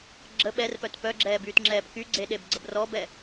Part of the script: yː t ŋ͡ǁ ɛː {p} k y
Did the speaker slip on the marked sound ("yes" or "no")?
no